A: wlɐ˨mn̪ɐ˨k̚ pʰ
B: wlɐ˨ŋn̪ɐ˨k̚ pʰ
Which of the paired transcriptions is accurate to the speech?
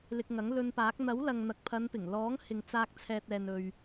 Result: B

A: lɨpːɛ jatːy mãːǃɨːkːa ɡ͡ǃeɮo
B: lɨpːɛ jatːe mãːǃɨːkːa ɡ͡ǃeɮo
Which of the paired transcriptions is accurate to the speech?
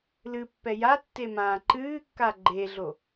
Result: B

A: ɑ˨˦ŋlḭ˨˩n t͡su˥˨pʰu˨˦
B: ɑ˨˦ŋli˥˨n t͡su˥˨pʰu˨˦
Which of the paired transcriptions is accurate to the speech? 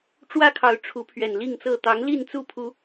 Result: B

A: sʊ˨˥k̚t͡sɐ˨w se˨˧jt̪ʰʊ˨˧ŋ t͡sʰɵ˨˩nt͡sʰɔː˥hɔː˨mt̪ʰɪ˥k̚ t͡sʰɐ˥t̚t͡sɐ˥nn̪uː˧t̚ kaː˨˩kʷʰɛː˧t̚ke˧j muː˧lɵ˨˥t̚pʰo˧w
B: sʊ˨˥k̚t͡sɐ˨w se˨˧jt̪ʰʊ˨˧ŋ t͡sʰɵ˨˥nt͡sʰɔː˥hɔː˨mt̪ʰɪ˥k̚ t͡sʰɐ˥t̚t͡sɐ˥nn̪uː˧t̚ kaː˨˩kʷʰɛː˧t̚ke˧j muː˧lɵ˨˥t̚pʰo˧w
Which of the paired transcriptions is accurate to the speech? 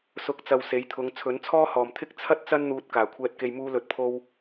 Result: B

